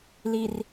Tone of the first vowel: low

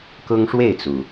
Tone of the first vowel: high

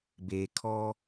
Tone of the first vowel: low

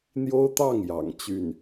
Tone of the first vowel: high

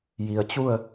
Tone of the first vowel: low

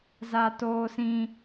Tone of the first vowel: high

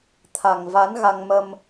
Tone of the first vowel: low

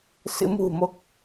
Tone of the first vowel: rising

